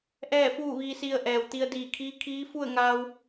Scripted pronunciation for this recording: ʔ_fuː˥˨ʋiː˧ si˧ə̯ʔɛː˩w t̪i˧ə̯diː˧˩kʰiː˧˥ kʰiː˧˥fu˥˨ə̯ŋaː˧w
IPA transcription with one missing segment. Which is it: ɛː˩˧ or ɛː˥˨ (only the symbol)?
ɛː˥˨